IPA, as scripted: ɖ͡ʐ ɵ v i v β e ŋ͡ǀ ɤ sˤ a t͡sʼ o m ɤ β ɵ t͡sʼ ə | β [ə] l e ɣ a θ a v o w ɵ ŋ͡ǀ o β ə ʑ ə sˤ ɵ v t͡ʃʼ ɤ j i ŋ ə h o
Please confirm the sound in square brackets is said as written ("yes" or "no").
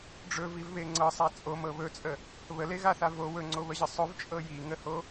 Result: yes